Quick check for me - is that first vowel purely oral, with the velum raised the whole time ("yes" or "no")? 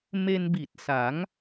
yes